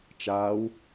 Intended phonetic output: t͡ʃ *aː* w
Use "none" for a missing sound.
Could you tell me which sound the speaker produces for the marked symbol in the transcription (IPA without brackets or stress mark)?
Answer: aː